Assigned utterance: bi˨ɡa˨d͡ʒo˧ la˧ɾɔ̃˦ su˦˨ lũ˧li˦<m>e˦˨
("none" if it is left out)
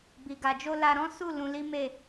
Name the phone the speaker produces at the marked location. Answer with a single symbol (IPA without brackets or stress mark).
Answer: m